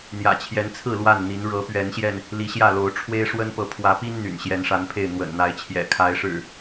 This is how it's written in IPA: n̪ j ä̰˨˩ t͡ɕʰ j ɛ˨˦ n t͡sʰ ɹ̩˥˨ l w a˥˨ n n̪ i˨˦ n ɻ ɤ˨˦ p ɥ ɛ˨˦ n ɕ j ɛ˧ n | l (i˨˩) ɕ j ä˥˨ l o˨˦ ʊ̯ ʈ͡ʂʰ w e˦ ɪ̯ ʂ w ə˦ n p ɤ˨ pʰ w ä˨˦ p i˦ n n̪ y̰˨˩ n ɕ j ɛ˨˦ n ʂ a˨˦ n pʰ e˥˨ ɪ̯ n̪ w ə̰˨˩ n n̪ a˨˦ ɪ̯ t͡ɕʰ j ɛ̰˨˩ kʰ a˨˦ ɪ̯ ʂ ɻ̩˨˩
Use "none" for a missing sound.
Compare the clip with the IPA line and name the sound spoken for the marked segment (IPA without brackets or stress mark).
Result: i˨˦